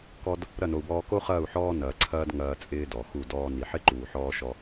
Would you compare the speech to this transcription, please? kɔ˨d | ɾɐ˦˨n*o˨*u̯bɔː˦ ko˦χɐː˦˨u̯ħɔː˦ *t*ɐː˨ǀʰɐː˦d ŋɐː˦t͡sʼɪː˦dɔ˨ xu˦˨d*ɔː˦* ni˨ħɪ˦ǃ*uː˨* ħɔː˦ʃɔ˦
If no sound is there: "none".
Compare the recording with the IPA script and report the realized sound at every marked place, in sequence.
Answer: o˨, n, ɔː˦, uː˨

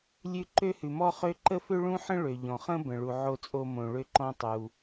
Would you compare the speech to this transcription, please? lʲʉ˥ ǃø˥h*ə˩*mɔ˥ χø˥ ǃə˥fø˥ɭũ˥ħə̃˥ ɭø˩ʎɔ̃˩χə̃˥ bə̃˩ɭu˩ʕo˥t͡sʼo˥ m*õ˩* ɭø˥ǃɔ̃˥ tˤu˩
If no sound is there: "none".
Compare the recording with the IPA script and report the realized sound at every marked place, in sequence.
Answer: ʉ˩, õ˩

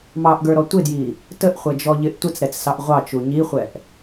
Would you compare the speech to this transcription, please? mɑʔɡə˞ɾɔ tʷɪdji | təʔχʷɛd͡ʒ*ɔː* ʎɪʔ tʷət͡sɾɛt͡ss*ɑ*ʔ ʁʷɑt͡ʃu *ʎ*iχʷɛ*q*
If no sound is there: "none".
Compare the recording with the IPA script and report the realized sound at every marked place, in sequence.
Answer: ɔ, ɑ, ɲ, ʔ

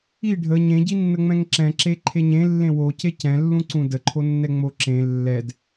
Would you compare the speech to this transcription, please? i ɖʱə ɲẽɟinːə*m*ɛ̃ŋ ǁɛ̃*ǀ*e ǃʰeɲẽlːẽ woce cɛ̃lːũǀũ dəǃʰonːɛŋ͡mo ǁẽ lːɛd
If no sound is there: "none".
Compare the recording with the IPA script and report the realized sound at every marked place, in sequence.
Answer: ŋ͡m, ǁ

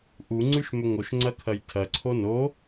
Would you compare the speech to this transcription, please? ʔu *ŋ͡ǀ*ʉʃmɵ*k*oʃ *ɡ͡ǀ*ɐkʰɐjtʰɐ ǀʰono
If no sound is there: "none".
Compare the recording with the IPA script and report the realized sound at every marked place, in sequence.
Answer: ŋ͡ǀ, ŋ, ŋ͡ǀ

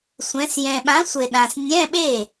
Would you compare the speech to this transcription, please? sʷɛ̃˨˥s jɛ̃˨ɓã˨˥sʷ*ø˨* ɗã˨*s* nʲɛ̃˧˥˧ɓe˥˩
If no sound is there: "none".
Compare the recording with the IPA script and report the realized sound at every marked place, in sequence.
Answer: e˨, s

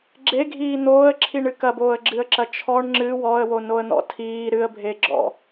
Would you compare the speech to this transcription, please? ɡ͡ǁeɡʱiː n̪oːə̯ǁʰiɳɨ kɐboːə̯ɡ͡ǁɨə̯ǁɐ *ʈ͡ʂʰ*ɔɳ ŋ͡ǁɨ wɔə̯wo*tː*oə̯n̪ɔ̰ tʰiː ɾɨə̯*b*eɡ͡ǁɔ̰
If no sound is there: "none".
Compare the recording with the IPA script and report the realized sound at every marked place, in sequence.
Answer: t͡ʃʰ, n, bʱ

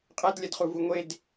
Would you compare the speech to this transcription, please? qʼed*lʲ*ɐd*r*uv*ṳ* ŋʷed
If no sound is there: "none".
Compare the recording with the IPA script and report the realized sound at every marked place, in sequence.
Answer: lʲ, χ, u

